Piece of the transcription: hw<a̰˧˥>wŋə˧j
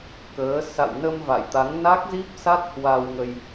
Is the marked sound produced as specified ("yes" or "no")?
no